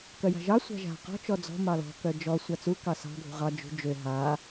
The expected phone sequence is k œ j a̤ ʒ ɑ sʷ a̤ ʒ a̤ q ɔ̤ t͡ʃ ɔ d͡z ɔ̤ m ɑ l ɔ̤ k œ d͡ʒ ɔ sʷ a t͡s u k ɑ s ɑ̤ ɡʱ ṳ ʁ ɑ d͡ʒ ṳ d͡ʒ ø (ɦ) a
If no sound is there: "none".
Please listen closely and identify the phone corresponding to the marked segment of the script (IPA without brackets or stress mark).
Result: ɦ